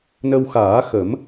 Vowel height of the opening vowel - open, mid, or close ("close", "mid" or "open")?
mid